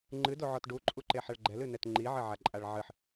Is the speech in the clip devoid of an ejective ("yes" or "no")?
no